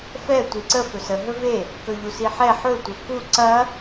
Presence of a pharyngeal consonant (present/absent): present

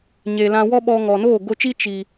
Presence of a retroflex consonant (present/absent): absent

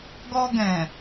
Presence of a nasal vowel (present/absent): present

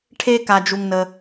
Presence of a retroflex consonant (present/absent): present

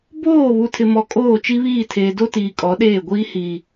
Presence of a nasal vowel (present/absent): absent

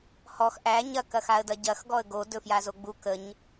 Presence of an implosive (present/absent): absent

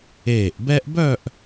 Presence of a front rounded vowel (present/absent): present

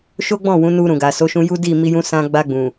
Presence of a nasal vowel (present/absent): present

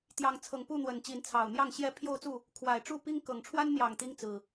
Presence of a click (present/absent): absent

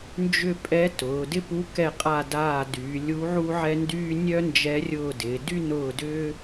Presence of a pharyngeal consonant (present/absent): present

